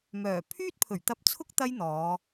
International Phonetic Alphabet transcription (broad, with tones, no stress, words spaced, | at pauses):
mœː˨˩ pʰyː˥t̚pʰɵ˨˩ɥt̪ɐ˧p̚t͡sʰʊ˥k̚ t̪ɐ˥jn̪ɔː˨˧